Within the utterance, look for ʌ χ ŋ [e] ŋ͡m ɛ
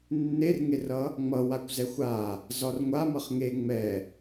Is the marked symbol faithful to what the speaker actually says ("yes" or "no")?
yes